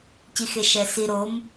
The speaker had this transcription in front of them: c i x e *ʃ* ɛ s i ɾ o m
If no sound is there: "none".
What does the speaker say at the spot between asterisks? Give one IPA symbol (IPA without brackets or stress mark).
ʃ